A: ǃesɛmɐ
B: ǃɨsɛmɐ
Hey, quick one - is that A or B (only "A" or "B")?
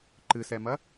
B